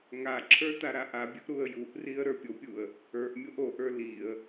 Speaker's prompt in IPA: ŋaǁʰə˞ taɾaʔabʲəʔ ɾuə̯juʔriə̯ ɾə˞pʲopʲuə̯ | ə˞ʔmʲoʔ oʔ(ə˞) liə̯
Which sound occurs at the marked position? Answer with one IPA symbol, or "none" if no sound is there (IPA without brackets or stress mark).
ə˞